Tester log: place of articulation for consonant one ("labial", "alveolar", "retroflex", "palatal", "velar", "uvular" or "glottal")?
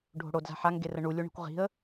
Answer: retroflex